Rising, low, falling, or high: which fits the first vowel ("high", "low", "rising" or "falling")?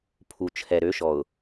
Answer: low